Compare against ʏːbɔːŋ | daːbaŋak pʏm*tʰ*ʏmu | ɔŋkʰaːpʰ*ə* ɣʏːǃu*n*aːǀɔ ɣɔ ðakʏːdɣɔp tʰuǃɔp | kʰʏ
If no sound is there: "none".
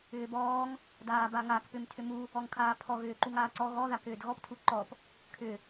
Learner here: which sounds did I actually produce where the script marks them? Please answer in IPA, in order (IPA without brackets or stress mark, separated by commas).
tʰ, ɔ, ŋ